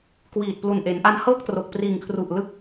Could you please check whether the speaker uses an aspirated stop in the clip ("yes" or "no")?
yes